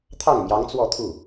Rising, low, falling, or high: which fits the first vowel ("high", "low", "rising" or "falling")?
falling